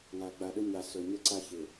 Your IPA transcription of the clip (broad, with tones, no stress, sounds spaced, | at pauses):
ŋ a˨ ɡ͡b a˨ ɗ ɵ˦ ɲ a˨ s ɵ˨ ɲ ə˦ ǀ a˦ ç ɪ˨